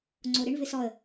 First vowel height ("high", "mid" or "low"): mid